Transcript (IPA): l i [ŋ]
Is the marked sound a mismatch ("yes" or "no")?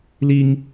no